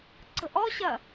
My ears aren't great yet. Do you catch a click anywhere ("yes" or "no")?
yes